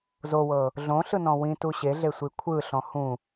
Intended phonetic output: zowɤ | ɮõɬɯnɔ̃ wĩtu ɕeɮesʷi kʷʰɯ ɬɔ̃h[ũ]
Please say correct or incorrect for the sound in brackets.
correct